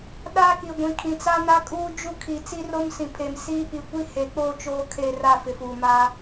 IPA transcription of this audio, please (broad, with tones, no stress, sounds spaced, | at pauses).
ɗ a˦ k i˨ ɡʷ ĩ˨ kʰ ĩ˨ t͡s a˦ n a˦ kʼ uː˦ d͡ʒ u˦ kʰ i˨ t͡s i˦ r o˦ m s ĩ˨ pʰ e˨ m s iː˦ p i˨ kʷ i˦ h e˨ k͡p o˦˨ t͡ʃ oː˦ kʰ e˦˨ r a˦˨ f ɪ˨ f uː˨ m a˦